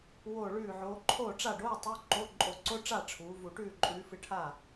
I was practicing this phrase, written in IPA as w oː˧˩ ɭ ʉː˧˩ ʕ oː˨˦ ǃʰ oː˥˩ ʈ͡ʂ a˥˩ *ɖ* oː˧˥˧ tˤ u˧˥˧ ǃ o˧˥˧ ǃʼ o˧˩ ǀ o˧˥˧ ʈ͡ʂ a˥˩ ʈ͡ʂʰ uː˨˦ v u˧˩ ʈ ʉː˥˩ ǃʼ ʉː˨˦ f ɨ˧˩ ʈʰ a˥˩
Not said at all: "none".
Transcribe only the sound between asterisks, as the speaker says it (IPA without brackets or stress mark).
ɖ